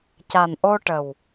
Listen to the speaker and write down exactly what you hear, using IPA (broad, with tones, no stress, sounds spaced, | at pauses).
c a˨˩ n ʔ o˧ ʈ ə˨˩ w